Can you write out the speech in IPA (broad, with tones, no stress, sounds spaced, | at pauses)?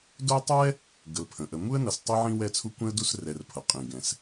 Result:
d o˦ tˤ ɛ˥ | ɡ ə˩ l pʰ ə̃˩ ʔ ə˨ m u˥ ə̯ n ʌ˨ s tˤ i˦ ʕ ĩ˦ w ɛ˦ t͡sʰ u˦ kʷ ɛ̃˥ ə̯ d u˦ s r ɛ˨ r pʰ ʌ˩ qʼ ĩ˩ ɡ ɛ̃˩ s